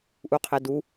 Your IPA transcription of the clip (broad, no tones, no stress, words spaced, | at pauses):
ʔuqʰedu